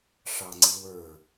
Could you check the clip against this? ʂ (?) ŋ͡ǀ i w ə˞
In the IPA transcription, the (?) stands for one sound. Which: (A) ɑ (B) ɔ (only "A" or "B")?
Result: A